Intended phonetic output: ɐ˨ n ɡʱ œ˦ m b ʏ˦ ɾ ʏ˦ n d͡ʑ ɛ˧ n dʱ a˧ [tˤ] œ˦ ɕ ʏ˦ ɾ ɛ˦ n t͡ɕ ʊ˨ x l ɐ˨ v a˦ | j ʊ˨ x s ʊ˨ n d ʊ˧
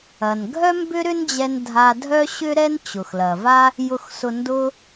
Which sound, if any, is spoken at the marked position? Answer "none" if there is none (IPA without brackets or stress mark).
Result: dʱ